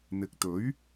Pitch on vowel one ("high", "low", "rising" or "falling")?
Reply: rising